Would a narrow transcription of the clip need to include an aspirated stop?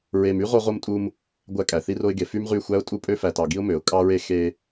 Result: no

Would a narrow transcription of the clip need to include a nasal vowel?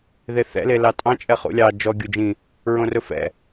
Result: yes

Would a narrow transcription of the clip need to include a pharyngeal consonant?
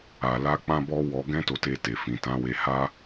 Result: no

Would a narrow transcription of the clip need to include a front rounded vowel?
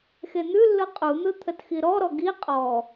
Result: no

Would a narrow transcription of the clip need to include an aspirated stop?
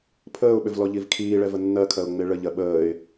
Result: yes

